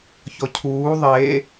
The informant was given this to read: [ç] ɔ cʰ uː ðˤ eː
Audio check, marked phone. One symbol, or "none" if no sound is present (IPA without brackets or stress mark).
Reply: ç